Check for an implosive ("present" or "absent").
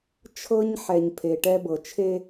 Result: absent